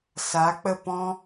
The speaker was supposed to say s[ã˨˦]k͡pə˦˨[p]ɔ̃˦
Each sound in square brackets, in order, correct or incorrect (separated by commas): incorrect, correct